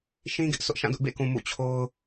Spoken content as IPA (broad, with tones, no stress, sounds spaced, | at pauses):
ʃ ĩ˦ ɡ ɪ˦ ʔ s ʊ˦ ʔ ʃ ã˦˨ d ʊ˦ ʔ b ḛ˦˨ k ũ˨ m ṵ˦˨ t͡ɕʰ o˦ ʊ̯